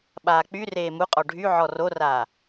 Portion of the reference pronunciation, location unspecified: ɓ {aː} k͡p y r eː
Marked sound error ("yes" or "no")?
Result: no